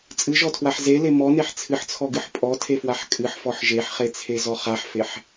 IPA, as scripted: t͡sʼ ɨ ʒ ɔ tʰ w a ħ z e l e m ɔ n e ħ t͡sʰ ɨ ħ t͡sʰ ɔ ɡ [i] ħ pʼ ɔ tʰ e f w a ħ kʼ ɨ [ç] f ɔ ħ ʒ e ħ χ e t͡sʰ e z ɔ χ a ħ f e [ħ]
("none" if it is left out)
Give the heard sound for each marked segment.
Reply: ɨ, ħ, ħ

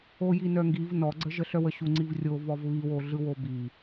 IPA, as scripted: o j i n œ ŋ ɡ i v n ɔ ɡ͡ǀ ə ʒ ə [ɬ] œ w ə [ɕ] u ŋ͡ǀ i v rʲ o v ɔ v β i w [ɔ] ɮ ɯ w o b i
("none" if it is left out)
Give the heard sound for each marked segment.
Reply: ɬ, ɕ, o

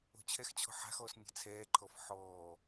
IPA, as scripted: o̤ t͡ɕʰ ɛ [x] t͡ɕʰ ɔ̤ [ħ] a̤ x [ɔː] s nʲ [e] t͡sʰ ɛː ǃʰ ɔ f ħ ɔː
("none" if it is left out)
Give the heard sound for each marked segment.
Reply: x, ħ, ɔː, e̤

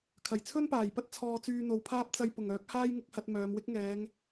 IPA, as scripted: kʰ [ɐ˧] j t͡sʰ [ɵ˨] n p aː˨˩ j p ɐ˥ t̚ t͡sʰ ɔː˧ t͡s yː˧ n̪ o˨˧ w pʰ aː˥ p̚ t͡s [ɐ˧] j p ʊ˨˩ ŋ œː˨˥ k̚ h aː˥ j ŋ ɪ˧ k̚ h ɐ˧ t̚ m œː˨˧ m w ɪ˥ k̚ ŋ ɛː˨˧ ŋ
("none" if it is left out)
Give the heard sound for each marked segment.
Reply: ɐ˨˩, ɵ˥, ɐ˧

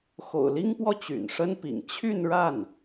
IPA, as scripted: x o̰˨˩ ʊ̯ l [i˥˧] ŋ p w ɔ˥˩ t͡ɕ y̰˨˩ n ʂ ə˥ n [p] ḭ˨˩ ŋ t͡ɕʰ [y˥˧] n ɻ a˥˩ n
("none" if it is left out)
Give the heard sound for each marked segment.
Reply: i˥, p, y˥˧

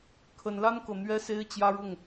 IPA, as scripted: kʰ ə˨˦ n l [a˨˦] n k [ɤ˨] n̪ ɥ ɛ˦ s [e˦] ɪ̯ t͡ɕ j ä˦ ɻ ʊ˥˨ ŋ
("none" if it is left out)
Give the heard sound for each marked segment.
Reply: a˦, ɤ˨, e˦

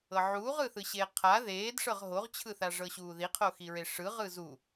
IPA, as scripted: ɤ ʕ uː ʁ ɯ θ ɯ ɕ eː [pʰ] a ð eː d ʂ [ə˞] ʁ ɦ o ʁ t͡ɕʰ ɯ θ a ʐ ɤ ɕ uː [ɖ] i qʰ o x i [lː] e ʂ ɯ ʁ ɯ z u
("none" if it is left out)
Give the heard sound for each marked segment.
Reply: qʰ, ɤ, ð, ɹ

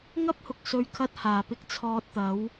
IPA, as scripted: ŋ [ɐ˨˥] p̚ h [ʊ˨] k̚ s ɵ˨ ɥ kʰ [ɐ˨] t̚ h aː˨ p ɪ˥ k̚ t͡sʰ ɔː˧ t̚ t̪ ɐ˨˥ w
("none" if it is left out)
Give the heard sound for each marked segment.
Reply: ɐ˥, ʊ˨, ɐ˥

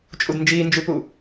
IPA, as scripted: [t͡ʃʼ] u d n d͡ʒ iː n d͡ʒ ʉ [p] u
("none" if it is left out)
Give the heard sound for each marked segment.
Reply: t͡ʃʼ, p

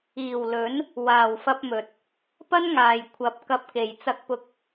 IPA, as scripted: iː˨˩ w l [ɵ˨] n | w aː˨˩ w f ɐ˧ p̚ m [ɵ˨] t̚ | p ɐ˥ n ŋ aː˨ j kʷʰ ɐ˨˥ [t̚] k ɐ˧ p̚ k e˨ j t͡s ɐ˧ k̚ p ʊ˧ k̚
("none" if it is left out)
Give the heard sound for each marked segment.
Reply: ɵ˨˥, ɵ˨, p̚

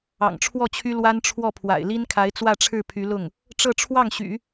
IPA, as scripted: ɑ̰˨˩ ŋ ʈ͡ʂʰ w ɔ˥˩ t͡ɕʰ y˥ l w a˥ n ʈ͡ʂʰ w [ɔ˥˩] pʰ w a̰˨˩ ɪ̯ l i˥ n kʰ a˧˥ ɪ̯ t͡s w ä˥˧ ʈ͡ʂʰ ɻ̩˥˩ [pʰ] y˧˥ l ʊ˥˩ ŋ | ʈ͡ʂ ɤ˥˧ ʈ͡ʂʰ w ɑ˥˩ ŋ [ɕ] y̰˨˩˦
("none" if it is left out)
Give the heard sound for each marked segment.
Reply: ɔ˥˩, pʰ, ɕ

